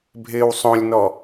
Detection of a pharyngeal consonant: absent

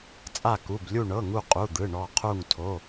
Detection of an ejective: present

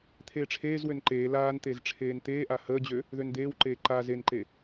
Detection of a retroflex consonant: present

